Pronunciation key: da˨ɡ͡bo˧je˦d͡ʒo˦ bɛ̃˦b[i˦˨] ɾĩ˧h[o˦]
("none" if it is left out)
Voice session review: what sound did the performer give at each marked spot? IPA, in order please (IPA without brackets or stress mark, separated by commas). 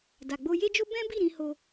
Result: i˦˨, o˧